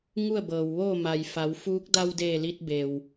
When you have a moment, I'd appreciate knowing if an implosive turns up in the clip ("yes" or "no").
no